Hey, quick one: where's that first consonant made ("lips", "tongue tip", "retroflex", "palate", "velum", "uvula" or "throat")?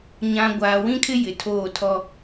palate